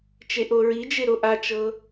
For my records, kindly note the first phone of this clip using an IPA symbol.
t͡ʃ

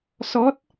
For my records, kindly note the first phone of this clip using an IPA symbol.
s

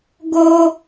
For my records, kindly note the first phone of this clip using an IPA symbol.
ɡ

